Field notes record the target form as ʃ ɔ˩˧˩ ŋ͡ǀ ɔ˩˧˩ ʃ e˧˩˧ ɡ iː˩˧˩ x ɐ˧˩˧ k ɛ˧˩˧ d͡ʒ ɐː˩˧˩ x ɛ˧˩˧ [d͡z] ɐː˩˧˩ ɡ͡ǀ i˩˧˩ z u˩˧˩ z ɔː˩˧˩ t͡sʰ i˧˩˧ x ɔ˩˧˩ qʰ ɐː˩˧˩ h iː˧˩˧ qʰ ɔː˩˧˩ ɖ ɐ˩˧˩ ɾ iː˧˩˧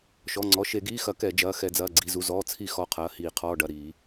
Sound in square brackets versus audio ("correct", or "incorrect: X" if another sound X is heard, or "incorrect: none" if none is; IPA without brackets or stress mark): correct